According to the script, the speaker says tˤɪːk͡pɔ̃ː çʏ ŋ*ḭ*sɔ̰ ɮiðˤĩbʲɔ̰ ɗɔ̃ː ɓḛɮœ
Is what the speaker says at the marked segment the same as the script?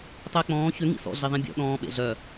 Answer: yes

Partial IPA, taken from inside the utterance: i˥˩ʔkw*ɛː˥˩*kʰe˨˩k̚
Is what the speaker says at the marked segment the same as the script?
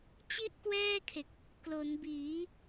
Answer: yes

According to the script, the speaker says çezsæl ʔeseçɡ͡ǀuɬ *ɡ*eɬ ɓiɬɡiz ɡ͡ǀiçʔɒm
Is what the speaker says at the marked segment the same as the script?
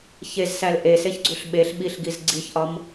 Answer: no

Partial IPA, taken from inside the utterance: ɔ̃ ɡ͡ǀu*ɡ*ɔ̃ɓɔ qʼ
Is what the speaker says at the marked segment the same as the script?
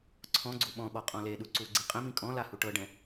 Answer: no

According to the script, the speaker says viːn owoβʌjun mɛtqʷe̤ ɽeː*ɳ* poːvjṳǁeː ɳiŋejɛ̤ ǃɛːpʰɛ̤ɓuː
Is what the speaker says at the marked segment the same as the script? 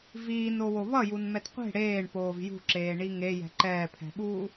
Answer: yes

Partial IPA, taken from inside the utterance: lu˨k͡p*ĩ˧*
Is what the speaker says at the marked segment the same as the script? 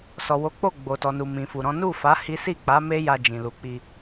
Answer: no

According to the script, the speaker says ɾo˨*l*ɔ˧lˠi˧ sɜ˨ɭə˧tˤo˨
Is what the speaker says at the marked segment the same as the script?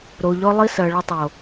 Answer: no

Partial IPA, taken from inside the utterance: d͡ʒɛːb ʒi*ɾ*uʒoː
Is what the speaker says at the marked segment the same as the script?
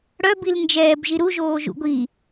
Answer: yes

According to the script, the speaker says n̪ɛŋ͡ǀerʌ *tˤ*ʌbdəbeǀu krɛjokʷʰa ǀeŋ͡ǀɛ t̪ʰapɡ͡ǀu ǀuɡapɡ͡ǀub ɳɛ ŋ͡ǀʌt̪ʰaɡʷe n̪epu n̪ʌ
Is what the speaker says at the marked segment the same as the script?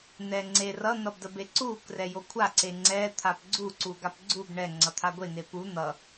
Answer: no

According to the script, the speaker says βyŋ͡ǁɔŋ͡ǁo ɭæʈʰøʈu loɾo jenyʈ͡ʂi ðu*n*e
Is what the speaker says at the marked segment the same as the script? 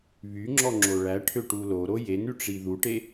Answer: no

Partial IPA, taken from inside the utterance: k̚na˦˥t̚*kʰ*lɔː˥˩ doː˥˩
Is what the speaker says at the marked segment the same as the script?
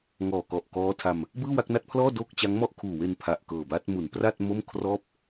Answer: no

